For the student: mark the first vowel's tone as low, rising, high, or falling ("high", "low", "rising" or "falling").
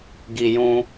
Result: high